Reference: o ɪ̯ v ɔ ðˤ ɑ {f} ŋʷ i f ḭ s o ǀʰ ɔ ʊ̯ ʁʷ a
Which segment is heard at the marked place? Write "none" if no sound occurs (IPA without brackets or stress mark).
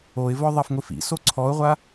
f